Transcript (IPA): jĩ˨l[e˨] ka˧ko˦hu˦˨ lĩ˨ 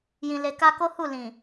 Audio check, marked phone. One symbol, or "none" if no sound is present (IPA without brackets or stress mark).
e˨